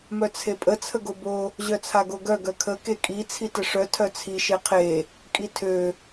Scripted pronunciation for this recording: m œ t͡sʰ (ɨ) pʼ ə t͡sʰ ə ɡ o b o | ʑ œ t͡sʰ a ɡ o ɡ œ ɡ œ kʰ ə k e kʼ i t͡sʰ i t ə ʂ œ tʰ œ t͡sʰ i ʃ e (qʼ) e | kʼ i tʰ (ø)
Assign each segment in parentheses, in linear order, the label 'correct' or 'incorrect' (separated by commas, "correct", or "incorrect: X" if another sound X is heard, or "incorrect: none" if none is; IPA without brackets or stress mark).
incorrect: e, incorrect: qʰ, correct